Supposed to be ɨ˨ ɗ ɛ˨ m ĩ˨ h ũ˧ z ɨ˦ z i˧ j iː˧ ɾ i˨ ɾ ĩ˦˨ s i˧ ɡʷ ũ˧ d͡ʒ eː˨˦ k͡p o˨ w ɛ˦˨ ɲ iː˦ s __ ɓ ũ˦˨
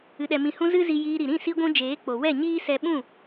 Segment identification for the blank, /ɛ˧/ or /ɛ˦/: ɛ˧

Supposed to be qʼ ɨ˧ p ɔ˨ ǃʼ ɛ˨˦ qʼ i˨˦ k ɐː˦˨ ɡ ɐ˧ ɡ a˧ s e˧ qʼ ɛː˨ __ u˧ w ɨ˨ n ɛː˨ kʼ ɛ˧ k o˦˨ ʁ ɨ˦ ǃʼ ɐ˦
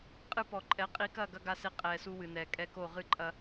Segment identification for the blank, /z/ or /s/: s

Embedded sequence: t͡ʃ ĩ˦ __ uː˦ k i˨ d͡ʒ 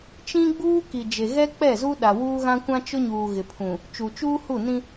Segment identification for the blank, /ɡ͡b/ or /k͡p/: ɡ͡b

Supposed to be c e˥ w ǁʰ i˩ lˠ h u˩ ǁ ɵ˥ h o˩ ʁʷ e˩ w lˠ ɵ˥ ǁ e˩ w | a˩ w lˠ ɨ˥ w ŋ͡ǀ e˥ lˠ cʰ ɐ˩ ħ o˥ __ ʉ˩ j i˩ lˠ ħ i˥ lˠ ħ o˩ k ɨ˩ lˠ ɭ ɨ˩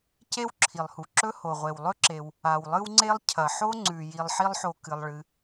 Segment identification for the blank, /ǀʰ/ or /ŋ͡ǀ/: ŋ͡ǀ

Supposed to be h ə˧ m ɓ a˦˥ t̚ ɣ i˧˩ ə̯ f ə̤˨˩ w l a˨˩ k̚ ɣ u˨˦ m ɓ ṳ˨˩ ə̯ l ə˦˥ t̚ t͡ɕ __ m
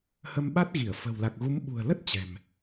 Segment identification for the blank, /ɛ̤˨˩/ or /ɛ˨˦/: ɛ̤˨˩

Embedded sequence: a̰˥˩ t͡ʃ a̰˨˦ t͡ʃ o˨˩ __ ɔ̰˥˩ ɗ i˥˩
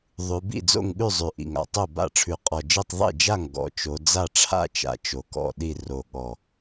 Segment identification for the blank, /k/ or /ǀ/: k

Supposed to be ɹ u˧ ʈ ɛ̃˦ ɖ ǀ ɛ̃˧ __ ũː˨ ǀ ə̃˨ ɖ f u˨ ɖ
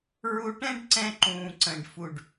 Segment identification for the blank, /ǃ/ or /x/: ǃ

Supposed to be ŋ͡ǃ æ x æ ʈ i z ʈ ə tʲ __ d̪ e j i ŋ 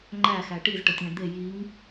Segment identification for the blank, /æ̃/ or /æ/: æ̃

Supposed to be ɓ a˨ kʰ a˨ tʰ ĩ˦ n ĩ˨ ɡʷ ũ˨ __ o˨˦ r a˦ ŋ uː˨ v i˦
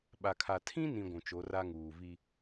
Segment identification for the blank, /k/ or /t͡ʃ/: t͡ʃ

